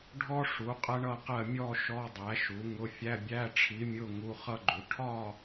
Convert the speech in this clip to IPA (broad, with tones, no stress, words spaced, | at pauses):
ɖʱɔ˥ʂu˨˥ qʼɜ˥ɳʌ˥˧qɜ˥˧ mʲɔ˥˧ ʃɔ˧˥˧dˤæ˨˥ʃu˨˥ŋʊ˧˥˧ fʲæ˧˥˧bʲæ˧˥˧ʈ͡ʂʰi˨˥mʲʊ˧˥˧ ŋu˧˥˧χʌ˥ɡ͡ǃu˨˥ ʈʰɒ˥˧